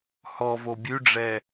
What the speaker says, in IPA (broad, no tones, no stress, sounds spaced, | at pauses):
h ɔ v o bʲ ʉ ɖ͡ʐ ɛ